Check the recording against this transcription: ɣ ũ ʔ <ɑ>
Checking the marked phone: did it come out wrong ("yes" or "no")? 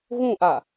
yes